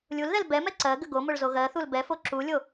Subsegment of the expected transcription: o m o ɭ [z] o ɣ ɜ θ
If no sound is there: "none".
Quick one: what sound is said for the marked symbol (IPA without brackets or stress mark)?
z